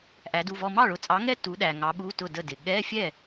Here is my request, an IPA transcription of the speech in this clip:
ʔæ˨˥du˧˥˧vɔ˥˧ mɑ˥˩ɭʊ˨˥t͡sʼɑ˨˥ŋɛ˥˧ tu˨˥ɗæ˨ŋɑ˨˥ ɓu˧˥˧tʊ˥˩də˥˩dɪ˨ ɠɛ˧˥˧fʲɛ˥˩

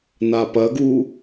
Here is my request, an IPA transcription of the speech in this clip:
napɐɡu

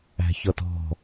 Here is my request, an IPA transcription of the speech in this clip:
æ̤çɔtɔ̤

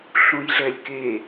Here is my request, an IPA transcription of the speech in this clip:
ɬũjɮɛlʲke

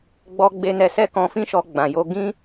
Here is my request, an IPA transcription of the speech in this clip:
ɡ͡bɔ˧ ɡ͡be˧nɛ˧sɛ˦ kɔ̃˧fĩ˦ʃɔ˧ ɡ͡bã˨jo˧ ɡĩ˦

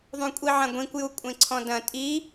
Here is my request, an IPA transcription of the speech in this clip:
ðˤũkʷʼiʕɐ̃ɡʷĩkʷ jukʷʼẽǀʰɔ̃dɐ̃ tʼi

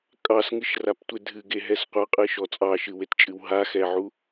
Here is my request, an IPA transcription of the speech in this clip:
kʼɑsŋɨʃraptʷe dʱɨɡeɦɛs qʷɑqʼɨʃɔ t͡sʼɑʃɨwett͡ʃʼɨw ɦaxɛʕu

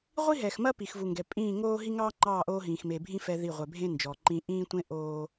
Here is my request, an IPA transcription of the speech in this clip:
ʁʷi˦ɦɛ˨xmɐ˦ pi˨xvu˨ŋɡɛ˨ pʼĩː˦˨ŋoː˦ ɦi˦ŋɑː˦ŋ͡ǃɑː˦˨ ʔoː˦ɦĩː˨x me˨bʱĩ˦ fɛ˦ði˦˨ ʁʷɛ˨bʱẽ˦ nd͡ʒɔ˨ǃĩ˦ ʔĩː˦tʷẽ˦ ʔoː˦

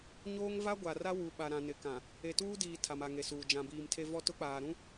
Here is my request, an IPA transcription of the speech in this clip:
ɲoː˦ŋ va˦ɡʷa˨ra˦ wu˨ɓa˨ ɾã˨ nɪ˨˦kã˨ | e˨tuː˦diː˨ tʰa˨ma˨ŋe˨suː˨ d͡ʒã˨biː˨mtʰe˦ vɔ˦tʊ˦k͡paː˨ɾũ˦

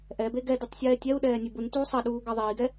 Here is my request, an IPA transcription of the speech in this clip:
ʔɛbe ɡɛdɛtˤ sʲɛːtʲɛu̯ɗɛː nʲebuntuː sˤɑɗuː ɡɑðˤiːɡɛ

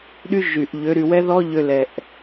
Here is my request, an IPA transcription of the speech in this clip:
ɗy˧ ʒy˨ʔ ʎø˨˦ɾy˨wɛ˦ðɔ˦ ʎø˧lɛ˨ʔ

